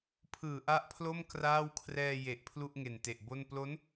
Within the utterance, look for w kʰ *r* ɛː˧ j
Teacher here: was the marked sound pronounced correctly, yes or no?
yes